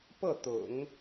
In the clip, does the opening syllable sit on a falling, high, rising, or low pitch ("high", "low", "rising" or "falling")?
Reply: falling